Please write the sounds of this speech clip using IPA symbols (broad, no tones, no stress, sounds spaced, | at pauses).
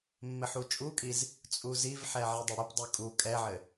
mː ɘ ħ u t͡ʃʼ u kʼ i z | t͡sʼ u z i v ħ ɛ ʕ i dˤ ɘ ɽ ɘ p dˤ ɨ kʼ u kʼ ɛ ʕ ɘ